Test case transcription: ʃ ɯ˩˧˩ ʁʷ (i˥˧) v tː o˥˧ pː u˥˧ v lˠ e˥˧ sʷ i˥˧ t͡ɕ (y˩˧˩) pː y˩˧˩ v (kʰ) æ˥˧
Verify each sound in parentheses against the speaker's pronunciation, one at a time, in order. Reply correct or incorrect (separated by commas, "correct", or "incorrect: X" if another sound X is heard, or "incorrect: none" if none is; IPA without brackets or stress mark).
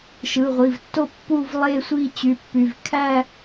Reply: incorrect: i˩˧˩, correct, correct